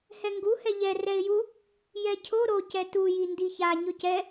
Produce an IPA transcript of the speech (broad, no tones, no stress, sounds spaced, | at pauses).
h ɛ ŋ ɡ u h ɛ ʎ ɛ r ɛ ɪ̯ j u | j ɛ cʰ o ɾ o c ɛ t u j i n d i ç a ɲ ɵ c ɛ